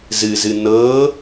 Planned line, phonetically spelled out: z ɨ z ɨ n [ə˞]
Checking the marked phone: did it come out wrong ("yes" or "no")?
yes